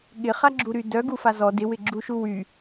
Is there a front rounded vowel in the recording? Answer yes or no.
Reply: yes